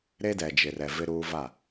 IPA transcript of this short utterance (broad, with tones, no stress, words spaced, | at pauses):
ɾe˦dɛ˨d͡ʒɪ˨rɛ˨ vɪ˦ɾuː˦va˦˨